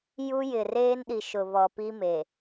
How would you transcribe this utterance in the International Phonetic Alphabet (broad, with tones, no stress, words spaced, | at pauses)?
ju˦jɪ˨ reː˦nɗi˨ʃʊ˨ βɔ˨pi˦me˨